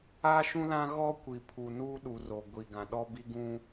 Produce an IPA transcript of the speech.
aː˦ ʃ ũ˦ l ã˦ ɣ ɔ˦ kʷ i˨ pʰ u˨ n uː˦ ɗ u˨ r o˨ ɡʷ i˨ ɡ ã˨ ɗ ɔ˦ b i˦ ɡ ũ˦

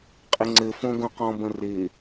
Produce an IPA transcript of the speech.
qʼ ɪ ŋ͡ǀ ɘ f õ ɡ õ q ɔ̃ b ə̃ r ɪ

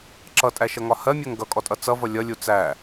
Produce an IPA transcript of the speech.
ǁ ʌ tʼ æ ʃ ʌ ŋ ɒ h ɜ mʲ ɜ ŋ ɡ ʌ kʼ ɔ tʼ ʌ t͡s ʌ v ʌ lʲ ʌ lʲ u t͡s æ

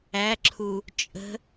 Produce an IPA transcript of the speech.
æ ǁʰ u | t͡ʃʼ ə̤

